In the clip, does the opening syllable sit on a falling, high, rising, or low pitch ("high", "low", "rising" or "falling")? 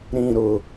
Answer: low